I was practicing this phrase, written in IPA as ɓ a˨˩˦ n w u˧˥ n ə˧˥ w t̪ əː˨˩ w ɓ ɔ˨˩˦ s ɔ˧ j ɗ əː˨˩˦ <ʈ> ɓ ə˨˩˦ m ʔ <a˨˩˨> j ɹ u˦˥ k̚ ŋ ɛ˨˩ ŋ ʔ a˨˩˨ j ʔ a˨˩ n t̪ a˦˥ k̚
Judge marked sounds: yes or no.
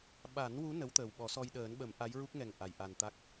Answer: no, no

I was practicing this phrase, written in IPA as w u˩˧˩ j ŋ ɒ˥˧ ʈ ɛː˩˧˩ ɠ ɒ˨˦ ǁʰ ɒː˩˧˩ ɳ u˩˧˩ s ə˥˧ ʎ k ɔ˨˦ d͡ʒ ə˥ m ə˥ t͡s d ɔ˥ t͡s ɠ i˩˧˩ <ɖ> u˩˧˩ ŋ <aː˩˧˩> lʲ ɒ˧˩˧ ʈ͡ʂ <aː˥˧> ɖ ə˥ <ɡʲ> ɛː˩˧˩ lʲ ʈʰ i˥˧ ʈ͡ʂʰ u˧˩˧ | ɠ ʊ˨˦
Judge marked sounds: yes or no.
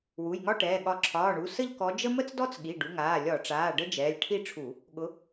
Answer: yes, yes, no, no

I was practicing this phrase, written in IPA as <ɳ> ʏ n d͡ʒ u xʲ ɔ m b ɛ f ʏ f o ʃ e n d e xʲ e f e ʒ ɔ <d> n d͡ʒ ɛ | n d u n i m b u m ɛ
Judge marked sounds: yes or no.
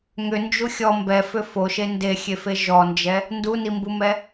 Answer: no, no

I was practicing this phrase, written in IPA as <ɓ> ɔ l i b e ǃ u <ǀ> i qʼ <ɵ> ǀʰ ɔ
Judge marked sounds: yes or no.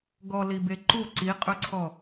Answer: no, yes, yes

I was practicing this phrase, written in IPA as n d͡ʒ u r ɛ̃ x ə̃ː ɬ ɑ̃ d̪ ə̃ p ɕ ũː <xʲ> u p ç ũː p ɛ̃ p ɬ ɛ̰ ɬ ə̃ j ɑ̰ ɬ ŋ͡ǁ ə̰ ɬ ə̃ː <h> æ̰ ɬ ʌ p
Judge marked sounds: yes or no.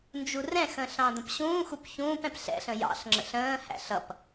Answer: no, yes

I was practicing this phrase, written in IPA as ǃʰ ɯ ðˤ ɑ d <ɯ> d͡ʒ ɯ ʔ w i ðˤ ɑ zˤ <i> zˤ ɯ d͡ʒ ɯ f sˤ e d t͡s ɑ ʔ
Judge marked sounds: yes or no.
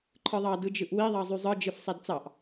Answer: yes, no

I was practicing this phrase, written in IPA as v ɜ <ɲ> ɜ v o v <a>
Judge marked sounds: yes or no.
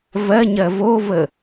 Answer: yes, no

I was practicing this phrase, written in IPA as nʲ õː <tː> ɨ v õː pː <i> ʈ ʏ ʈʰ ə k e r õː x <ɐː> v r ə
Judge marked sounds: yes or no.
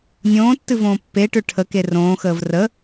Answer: yes, no, no

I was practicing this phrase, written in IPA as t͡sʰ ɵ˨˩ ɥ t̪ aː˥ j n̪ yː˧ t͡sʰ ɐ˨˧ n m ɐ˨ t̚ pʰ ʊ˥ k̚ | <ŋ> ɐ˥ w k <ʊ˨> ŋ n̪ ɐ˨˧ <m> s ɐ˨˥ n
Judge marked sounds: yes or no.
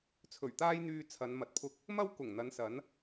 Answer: no, no, no

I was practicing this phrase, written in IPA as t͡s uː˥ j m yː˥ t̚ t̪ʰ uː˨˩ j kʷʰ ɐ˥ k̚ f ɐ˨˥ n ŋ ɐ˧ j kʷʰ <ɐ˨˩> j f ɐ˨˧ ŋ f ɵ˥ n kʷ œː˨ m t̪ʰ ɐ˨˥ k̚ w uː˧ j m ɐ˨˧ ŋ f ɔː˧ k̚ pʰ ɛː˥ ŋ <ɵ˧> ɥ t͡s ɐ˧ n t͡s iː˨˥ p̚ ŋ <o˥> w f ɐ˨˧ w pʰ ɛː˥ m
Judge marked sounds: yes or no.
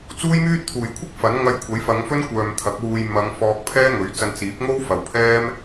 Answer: no, no, yes

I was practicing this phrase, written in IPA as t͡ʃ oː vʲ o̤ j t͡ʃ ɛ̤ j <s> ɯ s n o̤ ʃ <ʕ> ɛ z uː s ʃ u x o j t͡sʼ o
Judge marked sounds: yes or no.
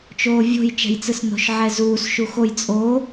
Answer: no, yes

